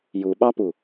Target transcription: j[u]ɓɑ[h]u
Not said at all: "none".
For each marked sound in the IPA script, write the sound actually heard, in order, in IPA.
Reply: u, p

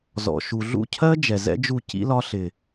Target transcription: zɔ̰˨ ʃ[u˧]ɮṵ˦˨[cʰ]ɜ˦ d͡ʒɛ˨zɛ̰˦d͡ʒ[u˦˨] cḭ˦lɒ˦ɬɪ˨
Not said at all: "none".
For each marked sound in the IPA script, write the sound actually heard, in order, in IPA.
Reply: u˨, cʰ, u˦˨

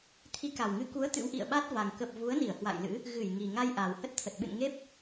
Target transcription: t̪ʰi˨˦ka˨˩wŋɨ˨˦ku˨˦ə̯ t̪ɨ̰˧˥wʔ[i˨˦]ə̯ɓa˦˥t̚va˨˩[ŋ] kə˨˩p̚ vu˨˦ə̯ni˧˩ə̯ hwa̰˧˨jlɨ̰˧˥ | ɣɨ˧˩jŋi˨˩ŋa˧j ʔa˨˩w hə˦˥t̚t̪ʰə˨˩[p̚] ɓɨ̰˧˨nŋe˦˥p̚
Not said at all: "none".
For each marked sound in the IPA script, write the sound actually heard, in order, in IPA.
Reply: ḭ˧˨, ŋ, t̚

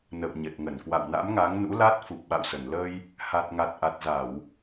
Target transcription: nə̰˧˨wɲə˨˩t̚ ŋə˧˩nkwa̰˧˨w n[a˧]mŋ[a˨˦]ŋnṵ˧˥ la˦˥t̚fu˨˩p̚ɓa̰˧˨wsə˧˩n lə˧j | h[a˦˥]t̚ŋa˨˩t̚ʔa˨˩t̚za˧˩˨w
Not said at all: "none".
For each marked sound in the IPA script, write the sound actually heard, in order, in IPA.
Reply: a̰˧˥, a˨˦, a˨˩

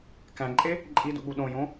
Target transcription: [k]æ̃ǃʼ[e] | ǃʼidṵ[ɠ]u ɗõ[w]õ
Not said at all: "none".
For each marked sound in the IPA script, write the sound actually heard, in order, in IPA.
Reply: k, e, ɠ, j

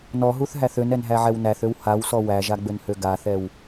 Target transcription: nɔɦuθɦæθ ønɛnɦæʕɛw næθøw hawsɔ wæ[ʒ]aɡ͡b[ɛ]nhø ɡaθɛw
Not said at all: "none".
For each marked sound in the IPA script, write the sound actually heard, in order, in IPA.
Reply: ʒ, ø

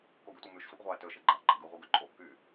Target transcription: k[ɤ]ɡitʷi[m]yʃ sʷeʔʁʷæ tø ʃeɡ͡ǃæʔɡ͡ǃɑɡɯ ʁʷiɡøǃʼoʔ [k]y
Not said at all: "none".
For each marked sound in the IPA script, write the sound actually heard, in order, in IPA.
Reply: o, m, k

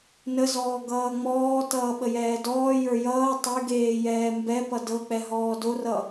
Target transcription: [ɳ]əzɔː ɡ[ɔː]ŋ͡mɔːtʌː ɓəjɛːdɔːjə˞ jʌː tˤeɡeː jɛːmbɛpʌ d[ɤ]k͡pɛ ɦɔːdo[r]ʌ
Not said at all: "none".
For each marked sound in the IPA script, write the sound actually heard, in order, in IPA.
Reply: n, ʌː, ɤ, r

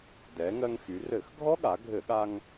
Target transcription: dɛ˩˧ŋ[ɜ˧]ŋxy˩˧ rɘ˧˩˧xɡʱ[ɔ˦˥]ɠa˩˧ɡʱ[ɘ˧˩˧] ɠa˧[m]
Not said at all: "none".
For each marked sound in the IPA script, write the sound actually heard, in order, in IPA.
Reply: ɜ˧, ɔ˦˥, ɘ˧˩˧, ŋ

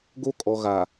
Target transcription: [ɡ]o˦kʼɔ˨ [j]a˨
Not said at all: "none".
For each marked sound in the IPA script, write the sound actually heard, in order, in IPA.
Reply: ɡ, ɣ

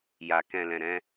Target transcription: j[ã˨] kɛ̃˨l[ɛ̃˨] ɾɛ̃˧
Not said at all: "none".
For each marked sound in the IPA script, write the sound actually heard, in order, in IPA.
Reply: a˨, ɛ̃˨

